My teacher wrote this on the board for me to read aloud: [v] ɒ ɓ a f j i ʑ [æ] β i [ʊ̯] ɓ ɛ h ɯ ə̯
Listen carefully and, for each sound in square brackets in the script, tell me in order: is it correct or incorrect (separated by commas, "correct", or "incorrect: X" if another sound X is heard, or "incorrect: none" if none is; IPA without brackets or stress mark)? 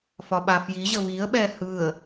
incorrect: f, incorrect: ə, incorrect: ə̯